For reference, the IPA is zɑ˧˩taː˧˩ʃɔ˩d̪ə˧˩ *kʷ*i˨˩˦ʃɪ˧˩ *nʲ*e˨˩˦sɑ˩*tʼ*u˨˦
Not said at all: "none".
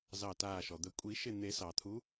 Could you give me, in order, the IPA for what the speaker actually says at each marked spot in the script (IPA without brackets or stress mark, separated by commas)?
kʷʼ, n̪, t̪ʰ